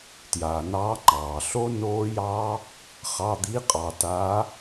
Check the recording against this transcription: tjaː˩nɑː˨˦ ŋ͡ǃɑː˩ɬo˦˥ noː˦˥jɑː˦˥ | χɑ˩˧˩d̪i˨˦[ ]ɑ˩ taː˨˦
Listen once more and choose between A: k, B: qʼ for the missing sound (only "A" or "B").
B